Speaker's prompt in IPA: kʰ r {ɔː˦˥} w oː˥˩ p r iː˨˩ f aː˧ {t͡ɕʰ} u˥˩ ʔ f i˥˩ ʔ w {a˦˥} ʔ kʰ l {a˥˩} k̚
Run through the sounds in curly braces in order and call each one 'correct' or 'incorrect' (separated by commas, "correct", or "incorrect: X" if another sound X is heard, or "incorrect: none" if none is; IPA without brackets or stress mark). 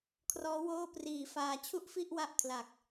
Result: correct, correct, correct, incorrect: a˨˩